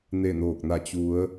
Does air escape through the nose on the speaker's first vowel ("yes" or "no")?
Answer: no